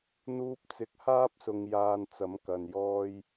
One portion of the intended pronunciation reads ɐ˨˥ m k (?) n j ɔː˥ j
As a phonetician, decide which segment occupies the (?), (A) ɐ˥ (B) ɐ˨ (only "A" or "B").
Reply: B